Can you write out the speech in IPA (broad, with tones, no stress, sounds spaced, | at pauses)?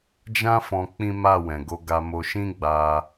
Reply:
d͡ʒ ã˦ f ɔ̃˧ k͡p ĩ˦ m a˦˨ w ɛ̃˨ ɡ o˧ ɡ a˧ m o˧ ʃ ĩ˦ ɡ͡b a˧